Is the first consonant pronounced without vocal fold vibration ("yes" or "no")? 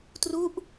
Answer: yes